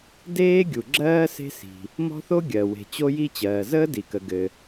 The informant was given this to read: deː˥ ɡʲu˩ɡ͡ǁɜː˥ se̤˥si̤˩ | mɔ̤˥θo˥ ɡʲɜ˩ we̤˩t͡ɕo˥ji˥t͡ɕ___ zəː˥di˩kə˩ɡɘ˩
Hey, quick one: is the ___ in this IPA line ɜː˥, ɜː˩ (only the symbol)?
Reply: ɜː˩